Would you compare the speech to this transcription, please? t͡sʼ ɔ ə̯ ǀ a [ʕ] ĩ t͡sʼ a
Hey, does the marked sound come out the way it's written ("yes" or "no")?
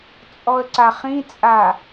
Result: no